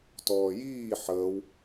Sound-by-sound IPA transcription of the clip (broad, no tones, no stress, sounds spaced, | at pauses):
t ɔː j iː ħ əː w